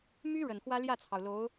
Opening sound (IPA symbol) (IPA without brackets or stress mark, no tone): m